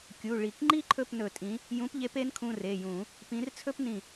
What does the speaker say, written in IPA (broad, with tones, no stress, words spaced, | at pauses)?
kʲu˩˧˩ ɭi˧˩˧kŋ͡ǃi˥ ǃʰɵ˥˩pnɵ˧˩˧tʼĩ˨˥ | jũ˨˥pʎe˨˥p e˨˥nkʰũ˩˧˩ re˩˧˩jũ˧˩˧ | pĩ˨˥rt͡sʰɵ˥pnĩ˧˩